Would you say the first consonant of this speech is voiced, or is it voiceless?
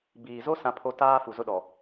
voiced